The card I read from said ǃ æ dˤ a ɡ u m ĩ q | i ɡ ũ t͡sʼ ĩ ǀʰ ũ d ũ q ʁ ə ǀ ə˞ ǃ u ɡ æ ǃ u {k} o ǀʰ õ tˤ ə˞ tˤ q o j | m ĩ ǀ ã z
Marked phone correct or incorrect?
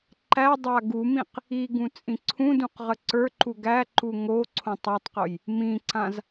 incorrect